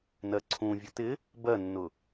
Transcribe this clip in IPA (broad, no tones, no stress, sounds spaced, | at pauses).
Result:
n ɜ ǀʰ ũ vʲ ʊ t ɪ | b ɜ nː ʊ